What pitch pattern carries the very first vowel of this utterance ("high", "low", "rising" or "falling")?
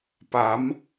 rising